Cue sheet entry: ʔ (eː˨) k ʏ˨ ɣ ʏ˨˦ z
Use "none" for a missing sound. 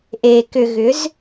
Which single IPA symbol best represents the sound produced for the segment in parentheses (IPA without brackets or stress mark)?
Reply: eː˨